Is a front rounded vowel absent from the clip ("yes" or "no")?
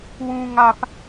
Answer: yes